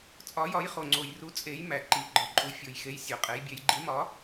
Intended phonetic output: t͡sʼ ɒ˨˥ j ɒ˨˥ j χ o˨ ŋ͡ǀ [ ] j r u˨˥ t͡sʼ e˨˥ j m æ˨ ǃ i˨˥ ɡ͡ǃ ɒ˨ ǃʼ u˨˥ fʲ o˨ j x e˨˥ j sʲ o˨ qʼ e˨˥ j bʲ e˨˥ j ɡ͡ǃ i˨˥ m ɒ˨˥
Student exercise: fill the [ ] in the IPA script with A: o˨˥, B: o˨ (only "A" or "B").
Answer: B